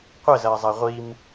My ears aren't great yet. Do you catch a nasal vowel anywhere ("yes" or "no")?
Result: no